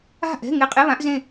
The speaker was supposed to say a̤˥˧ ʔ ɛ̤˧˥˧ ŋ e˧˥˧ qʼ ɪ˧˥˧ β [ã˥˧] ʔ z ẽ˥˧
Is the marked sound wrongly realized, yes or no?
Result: yes